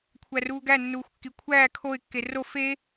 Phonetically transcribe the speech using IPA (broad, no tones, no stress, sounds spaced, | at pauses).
kʷʰ æ r uː ɡ æ nː uː xʷ kː i kʷʰ æː kʰ o ɪ̯ kː e r o f e